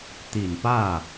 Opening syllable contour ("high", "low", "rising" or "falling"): low